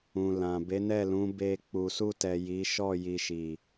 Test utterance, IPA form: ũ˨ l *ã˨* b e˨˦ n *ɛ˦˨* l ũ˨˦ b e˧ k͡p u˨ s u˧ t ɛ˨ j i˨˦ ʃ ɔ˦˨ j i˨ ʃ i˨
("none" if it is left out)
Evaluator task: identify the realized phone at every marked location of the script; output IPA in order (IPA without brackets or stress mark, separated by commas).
ã˨, ɛ˦˨